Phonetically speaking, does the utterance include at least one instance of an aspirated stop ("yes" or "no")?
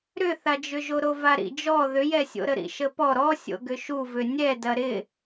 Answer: no